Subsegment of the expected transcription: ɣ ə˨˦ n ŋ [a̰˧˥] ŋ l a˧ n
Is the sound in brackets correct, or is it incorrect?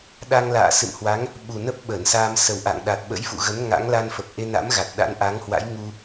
correct